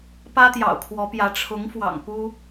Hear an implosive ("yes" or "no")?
no